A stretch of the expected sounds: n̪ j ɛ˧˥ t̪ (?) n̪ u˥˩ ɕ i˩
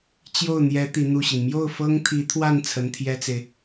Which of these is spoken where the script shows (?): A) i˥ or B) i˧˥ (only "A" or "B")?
B